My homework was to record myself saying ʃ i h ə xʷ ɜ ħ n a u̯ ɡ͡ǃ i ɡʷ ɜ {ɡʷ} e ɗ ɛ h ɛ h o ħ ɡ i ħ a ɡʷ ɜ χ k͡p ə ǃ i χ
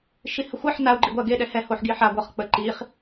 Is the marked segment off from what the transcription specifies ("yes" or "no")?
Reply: yes